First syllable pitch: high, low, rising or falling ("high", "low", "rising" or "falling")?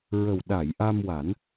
low